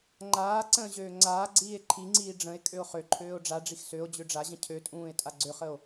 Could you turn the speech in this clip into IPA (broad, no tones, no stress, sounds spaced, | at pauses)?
ŋ͡ǃ aː ǀ ə̃ː ʑ øː ŋ͡ǀ aː ɡ͡ǀ iː e̯ ǃʰ i ŋ͡ǀ iː ɖ͡ʐ ə̃ e̯ kʼ ø o̯ χ ø ǃʰ øː o̯ ɖ͡ʐ a ɖ͡ʐ i x s ø o̯ d͡ʑ ø ɖ͡ʐ a ʑ ə̃ cʰ ø tʼ ũː e̯ tʼ a ɡ͡ǀ ø χ ə o̯